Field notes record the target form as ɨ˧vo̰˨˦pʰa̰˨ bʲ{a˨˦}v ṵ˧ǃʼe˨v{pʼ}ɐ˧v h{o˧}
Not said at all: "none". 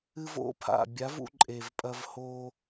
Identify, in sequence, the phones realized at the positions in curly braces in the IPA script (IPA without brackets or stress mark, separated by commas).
a˨˦, pʼ, o˧